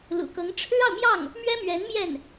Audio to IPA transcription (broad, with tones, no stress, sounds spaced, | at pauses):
l ṵ˨˩ k ɤ˧˥ ŋ ʈ͡ʂʰ ɻ̩˥ ɑ˨ ʊ̯ m j ɑ˥˩ ŋ | m ɥ ɛ˥ m ɥ ɛ˧˥ n m j ɛ˥˩ n